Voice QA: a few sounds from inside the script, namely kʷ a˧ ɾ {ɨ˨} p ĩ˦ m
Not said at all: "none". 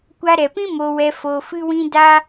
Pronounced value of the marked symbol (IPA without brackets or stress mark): ɛ˨